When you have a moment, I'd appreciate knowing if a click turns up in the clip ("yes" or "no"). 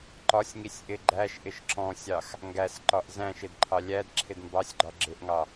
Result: yes